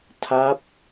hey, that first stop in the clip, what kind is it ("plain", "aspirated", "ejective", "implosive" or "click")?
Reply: aspirated